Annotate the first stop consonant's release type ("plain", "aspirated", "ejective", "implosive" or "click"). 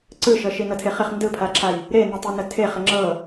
click